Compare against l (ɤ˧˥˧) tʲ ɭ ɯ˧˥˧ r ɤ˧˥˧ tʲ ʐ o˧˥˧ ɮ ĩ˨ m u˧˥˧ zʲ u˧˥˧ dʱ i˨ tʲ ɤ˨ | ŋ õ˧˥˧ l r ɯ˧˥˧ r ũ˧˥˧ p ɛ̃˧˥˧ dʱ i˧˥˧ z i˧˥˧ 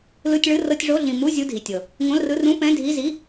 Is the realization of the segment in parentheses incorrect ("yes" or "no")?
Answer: yes